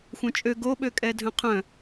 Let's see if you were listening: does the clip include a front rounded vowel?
yes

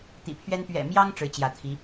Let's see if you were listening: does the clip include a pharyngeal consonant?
no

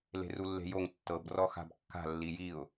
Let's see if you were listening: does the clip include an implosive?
no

